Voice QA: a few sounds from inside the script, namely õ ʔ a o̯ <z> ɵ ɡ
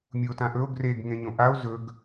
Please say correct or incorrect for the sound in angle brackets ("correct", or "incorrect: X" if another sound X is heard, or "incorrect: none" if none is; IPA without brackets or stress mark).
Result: correct